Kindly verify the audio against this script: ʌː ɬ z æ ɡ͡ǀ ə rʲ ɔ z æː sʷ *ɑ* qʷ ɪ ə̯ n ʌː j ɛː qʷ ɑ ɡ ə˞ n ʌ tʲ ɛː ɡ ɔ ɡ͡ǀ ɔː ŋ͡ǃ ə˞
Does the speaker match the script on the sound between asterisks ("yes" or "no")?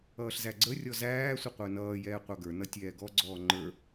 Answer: no